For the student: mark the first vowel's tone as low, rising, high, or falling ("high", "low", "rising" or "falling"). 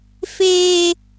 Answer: high